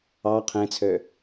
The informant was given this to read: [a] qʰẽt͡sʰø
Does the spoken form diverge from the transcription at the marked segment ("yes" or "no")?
yes